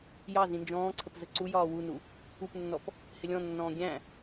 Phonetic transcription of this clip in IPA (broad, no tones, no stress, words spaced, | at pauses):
jɑ zĩnd͡ʒɔ̃ːǀʰəp zəǀujɒː wunu | upnːɔp | hɪlʲɔ̃nːɔ̃ː ɡʲæ̃